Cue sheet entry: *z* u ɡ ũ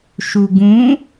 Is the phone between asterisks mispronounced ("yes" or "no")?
yes